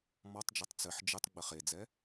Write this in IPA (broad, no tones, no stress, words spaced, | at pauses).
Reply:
mɔtˤd͡ʒɘtˤ t͡sɘħ d͡ʒɨtˤ ɡ͡bɘχed͡zɛ